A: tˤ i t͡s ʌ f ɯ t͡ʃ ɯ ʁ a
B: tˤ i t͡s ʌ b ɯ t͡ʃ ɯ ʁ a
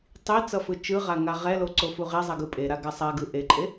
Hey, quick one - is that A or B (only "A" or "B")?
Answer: A